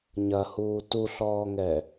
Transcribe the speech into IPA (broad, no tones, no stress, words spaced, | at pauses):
ɲɐhuː tuɬɔːŋɛ